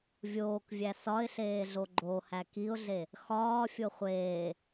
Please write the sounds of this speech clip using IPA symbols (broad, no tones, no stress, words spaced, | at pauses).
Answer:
vʲoːkvʲæ sɒɪ̯ɬeːɮo ɡ͡ǃohæ kiʊ̯ɮe | xɒːfʲo χʷeː